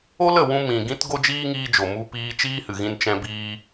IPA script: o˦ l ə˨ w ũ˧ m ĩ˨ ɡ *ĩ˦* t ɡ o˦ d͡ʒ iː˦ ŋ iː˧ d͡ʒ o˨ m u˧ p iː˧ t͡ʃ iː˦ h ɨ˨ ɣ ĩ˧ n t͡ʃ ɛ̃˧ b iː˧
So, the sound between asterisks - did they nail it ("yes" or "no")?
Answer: yes